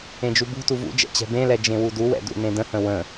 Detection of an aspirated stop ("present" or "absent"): absent